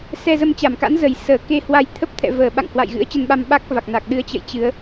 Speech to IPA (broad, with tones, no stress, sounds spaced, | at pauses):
s ɛ˧ z ə˧ m t͡ɕ a˧˩ m k a̰˧˥ n z ə˨˩ j s əː˧˩ k e˧ h w a˧ j t̪ʰ ə˦˥ p̚ t̪ʰ ɛ̰˧˨ v əː˧˩ ɓ a̰˧˨ ŋ h w a̰˧˨ j ɣ ɨ̰˧˥ ə̯ t͡ɕ ə˧ n ɓ a˧ m ɓ a˦˥ k̚ v a˨˩ k̚ n a˨˩ k̚ ɗ ɨ˨˦ ə̯ t͡ɕ ə̰˧˨ j t͡ɕ ɨ˨˦ ə̯